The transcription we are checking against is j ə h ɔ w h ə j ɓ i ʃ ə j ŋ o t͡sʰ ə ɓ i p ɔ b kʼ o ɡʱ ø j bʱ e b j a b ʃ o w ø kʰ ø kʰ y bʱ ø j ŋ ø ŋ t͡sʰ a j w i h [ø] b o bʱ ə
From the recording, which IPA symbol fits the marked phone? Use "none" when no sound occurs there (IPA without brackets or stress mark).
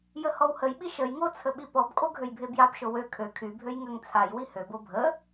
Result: ø